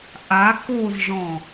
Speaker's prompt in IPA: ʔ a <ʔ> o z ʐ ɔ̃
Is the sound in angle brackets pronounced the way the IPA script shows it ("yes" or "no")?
no